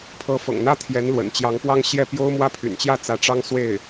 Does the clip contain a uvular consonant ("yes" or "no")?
no